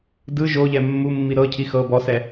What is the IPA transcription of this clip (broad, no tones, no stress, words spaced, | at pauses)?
dɯ ʒoʎɛ mːumːi ɾɤcʰi xɤ bɔsɛ